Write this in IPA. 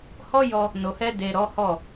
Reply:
h ɔ˦ j ɔ˧ | n o˨ h ɛ˧ d e˨ ɾ ɔ˨˦ h ɔ˦˨

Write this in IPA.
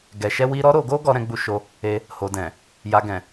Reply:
ɡ ɛ˨ ʃ ɛ˧ w i˧ ɾ ɔ˦ ɾ o˧ ɡ o˦ ɡ ɔ˧ ɾ ɛ̃˧ ɡ͡b u˧ ʃ o˧ | e˧ | h o˨ d ɛ̃˨ | j a˨ ɡ ɛ̃˨

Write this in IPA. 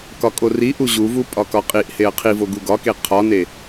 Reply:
k ɒ kʼ o r i ʔ u ʑ u v u pʼ ɒ k ɒ qʼ i ʔ h e ɐ̯ qʰ i v o ɡ u ɡ ɒ k e qʰ ɒ n e

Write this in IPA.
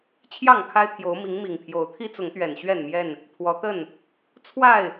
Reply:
t͡ɕʰ j ɑ˥˨ ŋ kʰ a˦ ɪ̯ t̪ʰ j o˨˦ ʊ̯ m i˨˦ ŋ m i˨˩ ŋ pʰ j o˨˦ ʊ̯ t̪ʰ i˦ t͡s ʊ˨˦ ŋ t̪ ɥ ɛ˨˩ n ɕ ɥ ɛ˥˨ n m j ɛ˥˨ n | pʰ w ɔ˨˦ t̪ ə˥˨ n | t͡sʰ w a˥˨ ɪ̯

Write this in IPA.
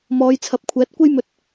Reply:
m ɔː˨˧ j t͡sʰ ɐ˨˥ p̚ kʷʰ ɛː˨˥ t̚ kʷ e˥ j m ɵ˧ t̚

